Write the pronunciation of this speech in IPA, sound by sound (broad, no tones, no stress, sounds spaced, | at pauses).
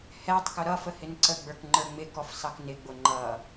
h ɛ tˤ k ʊ ɾ ʌ f ə h ɪ n ǀ ə ɡ͡b ə˞ k ŋ͡ǃ ə˞ ŋ͡m ɪ k ɔ f s ɑ k n ɪ ɡ͡b ʊ ŋ͡ǃ ʌ